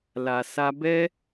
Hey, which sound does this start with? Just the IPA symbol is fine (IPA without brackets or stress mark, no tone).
l